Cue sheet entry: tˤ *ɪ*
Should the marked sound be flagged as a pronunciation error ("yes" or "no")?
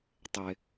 no